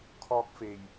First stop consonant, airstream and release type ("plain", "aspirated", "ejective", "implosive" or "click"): aspirated